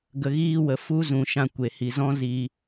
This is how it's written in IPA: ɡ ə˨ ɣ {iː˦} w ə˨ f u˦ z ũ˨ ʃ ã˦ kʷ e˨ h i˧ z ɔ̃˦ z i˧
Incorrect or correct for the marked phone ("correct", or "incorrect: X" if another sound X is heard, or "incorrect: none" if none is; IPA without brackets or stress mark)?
incorrect: iː˧